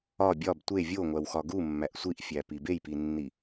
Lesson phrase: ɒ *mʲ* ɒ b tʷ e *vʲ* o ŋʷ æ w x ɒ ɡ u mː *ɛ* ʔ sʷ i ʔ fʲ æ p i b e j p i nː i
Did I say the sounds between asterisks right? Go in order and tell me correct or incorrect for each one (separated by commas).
incorrect, correct, incorrect